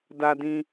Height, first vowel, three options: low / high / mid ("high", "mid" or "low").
low